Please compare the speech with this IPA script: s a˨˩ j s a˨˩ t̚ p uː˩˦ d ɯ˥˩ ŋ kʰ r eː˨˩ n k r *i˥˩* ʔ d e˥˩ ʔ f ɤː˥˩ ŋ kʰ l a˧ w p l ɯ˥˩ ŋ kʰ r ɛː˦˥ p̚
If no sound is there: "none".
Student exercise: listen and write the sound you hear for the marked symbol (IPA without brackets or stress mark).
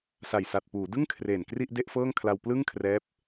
i˥˩